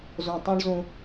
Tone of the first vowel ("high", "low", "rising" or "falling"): low